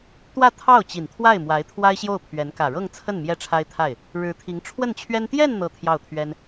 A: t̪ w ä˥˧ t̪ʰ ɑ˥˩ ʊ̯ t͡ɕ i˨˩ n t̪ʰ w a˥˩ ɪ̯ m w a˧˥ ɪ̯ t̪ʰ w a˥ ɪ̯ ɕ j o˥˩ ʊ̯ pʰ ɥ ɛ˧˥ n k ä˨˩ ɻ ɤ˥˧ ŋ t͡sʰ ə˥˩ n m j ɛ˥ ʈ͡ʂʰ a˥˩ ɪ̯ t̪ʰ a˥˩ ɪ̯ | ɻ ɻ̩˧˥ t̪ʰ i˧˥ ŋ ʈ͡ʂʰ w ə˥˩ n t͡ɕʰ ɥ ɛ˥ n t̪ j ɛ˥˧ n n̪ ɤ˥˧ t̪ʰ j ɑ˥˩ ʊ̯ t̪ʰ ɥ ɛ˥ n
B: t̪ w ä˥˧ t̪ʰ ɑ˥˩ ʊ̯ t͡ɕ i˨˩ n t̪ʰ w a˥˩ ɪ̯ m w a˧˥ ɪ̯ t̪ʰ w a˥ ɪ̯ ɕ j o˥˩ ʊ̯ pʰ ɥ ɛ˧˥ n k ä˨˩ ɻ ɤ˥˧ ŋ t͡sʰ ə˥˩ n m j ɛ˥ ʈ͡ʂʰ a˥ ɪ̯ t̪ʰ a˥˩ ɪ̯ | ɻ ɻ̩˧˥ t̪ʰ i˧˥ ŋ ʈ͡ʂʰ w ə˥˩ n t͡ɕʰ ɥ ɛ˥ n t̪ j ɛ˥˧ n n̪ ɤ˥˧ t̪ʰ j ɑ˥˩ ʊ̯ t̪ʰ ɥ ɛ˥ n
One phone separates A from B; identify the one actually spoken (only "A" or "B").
B